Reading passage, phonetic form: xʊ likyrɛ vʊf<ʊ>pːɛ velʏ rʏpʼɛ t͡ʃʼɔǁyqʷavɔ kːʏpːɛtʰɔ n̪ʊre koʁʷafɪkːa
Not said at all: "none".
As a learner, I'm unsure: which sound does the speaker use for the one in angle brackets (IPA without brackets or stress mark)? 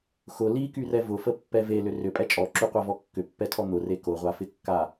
ə